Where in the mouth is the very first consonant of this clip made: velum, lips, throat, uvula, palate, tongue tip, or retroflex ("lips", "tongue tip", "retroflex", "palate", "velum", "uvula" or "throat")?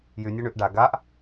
palate